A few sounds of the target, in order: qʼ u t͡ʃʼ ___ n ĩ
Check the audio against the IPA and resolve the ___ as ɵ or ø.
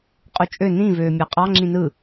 ø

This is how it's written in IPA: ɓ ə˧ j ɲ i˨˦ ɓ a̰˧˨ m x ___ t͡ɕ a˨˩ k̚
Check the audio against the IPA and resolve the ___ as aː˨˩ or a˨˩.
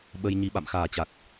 aː˨˩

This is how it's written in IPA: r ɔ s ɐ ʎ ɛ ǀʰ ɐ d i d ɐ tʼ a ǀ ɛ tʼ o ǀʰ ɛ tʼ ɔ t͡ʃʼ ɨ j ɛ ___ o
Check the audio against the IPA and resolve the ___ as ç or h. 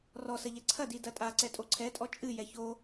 ç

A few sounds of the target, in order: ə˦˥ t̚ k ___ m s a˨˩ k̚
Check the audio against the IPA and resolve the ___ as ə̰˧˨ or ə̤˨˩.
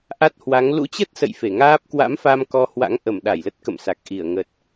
ə̰˧˨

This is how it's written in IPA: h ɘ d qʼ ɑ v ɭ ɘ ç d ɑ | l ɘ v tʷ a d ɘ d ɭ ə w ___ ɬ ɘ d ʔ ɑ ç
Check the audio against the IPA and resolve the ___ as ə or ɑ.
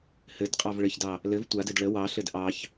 ɑ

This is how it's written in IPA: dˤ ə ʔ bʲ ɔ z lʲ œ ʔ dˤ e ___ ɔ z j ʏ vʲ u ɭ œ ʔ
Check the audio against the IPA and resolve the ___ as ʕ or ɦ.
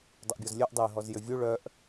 ɦ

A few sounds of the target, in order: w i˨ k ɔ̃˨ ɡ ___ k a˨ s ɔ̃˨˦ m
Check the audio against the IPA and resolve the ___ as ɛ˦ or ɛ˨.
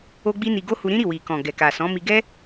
ɛ˨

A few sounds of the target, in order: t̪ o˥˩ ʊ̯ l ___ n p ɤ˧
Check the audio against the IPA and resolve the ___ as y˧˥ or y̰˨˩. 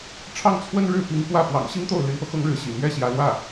y˧˥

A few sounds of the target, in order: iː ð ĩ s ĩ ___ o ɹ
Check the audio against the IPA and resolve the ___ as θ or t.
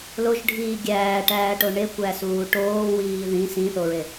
θ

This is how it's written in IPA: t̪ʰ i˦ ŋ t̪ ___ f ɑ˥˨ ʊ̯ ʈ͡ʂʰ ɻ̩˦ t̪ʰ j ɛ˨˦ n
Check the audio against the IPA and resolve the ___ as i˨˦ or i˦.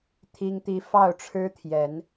i˦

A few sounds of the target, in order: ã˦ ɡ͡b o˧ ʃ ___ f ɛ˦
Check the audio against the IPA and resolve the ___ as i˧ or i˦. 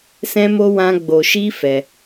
i˦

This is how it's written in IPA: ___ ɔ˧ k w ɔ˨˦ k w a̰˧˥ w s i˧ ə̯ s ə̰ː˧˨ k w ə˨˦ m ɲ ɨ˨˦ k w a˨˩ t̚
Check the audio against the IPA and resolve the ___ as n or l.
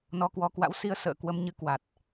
n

